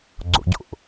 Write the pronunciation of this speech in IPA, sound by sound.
ɡ͡ǀ o̰ ɟ o̰ ʔ

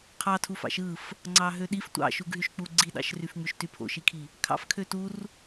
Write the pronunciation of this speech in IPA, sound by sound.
qʰ ɑ tʰ u f ɑ̰ ʃ ɯ f | ŋ͡ǀ ɑ ɦ ø ɗ i f tʷ ɑ̰ ʃ u ɡ ɦ y ʃ k͡p u ɡ͡ǀ i ɗ ɑ̰ ʃ r y f ŋ͡m y ʃ t y pʰ o̰ ʃ i kʰ i | kʰ ɑ̰ f kʰ ø t u r

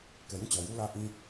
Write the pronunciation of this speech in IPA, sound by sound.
k ɛ˨ j ũ˦˨ t͡ɕ ɔ˨ j u˦ l ä˦ ʔ ĩ˦

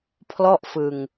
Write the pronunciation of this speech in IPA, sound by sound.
pʰ l ɔ˥˩ ʔ f ɯ˧ ŋ

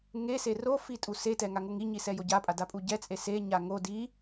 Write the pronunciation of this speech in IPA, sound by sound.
ŋ e s e r o f i tʼ u s e t ɛ ŋ a ŋ o ŋ i ɲ i s ɛ j o ɟ a pʼ a d a pʼ u ɟ ɛ t͡sʼ e s e ɲ a ŋ o d i

